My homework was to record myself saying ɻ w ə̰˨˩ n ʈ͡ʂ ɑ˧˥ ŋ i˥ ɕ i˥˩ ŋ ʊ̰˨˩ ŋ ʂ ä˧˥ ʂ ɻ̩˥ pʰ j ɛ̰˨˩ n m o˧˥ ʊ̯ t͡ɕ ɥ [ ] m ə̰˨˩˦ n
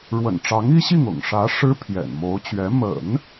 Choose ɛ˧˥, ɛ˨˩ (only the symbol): ɛ˧˥